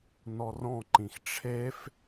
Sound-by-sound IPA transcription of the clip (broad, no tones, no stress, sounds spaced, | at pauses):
n ɔ r ɔ̃ ǃ ĩ x ʈ͡ʂʰ e f